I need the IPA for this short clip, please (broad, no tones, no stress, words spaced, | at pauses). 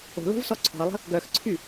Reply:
o̤lo̤vsɔ ǀʰɔ̤ə̯lˠə̤ | ɡœxǀʰy